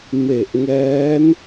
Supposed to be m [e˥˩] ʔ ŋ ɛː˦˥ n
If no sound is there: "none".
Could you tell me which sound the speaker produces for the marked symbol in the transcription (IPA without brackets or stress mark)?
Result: e˨˩